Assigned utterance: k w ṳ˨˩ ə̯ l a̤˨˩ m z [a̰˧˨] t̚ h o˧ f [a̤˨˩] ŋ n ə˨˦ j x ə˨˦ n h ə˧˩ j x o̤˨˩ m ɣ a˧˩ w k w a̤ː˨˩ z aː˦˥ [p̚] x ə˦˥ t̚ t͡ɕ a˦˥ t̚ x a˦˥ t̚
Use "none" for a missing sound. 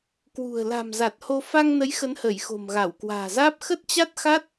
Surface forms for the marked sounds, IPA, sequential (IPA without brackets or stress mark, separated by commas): a˨˩, a˧, p̚